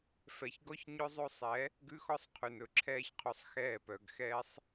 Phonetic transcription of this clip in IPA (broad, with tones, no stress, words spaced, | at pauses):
fɛ˧çɡɔ˦çɲɵ˦zˤo˦ sˤɛ˨˦ | ɡʉ˧xɔ˧sˤqʰʉ˨n ɵ˧ ǁʰɛː˧çqʰo˧sˤ xɛː˦˨pœ˧ɡxɛː˦sˤ